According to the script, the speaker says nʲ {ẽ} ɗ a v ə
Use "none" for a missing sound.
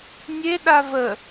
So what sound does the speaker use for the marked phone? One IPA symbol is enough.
e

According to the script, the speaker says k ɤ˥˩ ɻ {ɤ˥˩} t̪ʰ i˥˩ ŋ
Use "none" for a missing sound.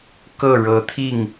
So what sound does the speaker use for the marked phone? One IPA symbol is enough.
ɤ˧˥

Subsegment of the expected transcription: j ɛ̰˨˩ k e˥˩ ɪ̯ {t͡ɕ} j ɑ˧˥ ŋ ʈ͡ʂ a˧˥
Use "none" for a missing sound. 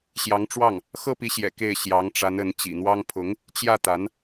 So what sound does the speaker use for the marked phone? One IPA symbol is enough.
ɕ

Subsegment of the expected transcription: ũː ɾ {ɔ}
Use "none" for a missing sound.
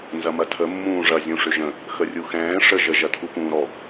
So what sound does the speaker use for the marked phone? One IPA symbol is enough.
ɔ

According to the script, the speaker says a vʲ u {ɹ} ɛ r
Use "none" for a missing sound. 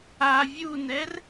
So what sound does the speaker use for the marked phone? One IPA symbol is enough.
n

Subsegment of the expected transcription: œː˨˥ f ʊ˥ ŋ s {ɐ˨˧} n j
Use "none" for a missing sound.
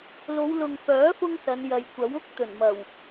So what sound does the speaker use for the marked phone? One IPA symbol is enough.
ɐ˨˧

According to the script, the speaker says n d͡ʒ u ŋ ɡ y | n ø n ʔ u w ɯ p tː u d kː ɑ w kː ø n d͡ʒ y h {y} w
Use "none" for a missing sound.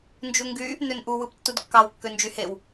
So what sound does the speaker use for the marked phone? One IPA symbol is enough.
e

